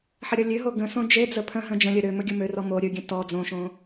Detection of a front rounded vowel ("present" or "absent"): present